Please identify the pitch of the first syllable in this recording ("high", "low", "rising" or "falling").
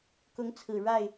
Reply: rising